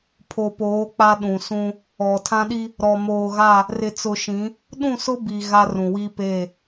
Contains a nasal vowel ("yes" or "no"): yes